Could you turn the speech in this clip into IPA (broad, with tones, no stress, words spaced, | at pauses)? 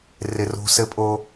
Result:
rɪ˨ro̤˦sɘ˦pʼo˦